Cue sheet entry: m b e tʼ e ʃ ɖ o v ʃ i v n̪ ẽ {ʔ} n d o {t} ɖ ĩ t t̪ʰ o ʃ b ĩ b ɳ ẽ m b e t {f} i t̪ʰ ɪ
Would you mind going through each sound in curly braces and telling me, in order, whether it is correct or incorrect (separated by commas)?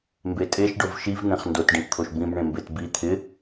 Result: incorrect, correct, incorrect